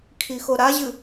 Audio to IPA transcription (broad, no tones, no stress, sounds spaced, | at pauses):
kʰ i x o ɾ a ʑ ɨ